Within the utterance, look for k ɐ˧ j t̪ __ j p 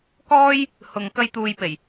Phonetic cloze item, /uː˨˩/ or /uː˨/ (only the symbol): uː˨